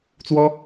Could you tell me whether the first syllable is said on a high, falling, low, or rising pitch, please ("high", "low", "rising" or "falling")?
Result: high